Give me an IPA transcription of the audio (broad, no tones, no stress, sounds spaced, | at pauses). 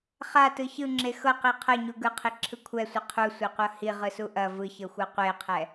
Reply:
χ a t ɯ ç ɯ ŋ͡ǁ e x ɤ q i qʰ ɤ ɲ u ɡ ɯ qʰ i ǁʰ ɯ kʷʰ ɛ sʷ ɯ qʰ u sʷ e qʷ ɤ h i ʁ ɯ s u ʔ ɐ v ɯ ç ɤ xʷ ɤ qʷ e qʰ ɛ